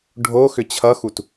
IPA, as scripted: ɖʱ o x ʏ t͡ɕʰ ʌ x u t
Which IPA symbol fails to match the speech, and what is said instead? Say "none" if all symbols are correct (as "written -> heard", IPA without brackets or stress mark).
none